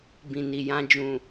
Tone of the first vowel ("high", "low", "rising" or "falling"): low